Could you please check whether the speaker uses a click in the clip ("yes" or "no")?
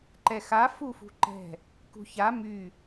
yes